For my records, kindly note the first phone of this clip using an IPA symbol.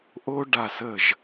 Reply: ʔ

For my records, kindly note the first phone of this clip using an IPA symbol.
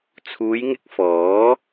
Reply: t͡sʰ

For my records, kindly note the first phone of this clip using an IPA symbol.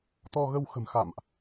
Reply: t̪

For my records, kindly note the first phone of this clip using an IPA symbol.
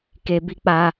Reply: k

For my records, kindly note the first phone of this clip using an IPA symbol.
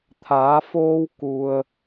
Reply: t̪ʰ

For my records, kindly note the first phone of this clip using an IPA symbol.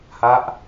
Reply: h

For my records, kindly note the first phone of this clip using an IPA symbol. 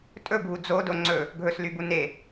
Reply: tʼ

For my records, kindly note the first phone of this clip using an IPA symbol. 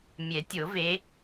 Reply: mʲ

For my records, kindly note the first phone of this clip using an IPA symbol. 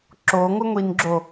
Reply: ǁ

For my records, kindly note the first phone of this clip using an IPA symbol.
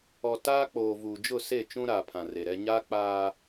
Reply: ɔ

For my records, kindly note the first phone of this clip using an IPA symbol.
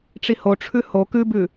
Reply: ʈ͡ʂ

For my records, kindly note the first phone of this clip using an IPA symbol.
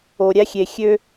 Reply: o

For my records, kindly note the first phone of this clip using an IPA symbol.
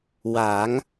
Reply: w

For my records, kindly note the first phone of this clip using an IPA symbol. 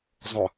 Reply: zˤ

